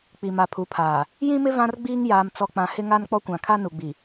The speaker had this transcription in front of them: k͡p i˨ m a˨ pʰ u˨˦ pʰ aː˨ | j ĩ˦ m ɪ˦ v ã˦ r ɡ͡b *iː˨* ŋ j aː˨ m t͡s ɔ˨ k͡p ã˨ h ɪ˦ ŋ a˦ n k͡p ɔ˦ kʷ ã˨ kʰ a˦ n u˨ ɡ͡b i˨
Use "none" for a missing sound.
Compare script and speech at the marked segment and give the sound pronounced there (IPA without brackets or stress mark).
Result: iː˦